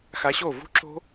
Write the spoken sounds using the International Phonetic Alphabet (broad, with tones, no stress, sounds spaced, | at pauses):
x a˧ ɕ o˦˨ v ṳ˦ ǁ o̤˦